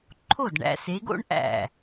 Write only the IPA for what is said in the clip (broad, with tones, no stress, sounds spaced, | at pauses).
ǃʰ o˥˩ d ɳ æ̰˨˦ s e˨˦ ɡ o̰˥ ɳ ʔ æ̰˥˩